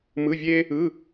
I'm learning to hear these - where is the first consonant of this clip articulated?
lips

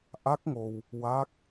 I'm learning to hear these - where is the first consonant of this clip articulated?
throat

